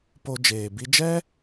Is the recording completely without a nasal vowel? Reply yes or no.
yes